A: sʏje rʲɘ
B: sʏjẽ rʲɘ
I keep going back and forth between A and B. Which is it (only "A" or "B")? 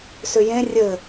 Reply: B